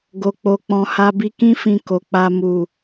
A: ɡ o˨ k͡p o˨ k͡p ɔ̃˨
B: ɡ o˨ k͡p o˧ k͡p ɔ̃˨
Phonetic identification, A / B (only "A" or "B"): A